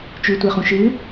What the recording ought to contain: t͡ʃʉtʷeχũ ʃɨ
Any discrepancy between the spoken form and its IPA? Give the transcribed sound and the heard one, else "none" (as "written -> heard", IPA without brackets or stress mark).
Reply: none